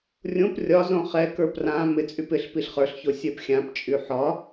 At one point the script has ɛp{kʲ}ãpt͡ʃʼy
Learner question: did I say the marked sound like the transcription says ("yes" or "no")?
no